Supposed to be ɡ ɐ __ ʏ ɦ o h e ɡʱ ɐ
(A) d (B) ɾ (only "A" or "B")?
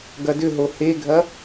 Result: A